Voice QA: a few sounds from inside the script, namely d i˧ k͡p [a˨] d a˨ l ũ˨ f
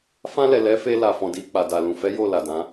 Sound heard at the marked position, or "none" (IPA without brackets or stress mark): a˨